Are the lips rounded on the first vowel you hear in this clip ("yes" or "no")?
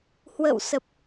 no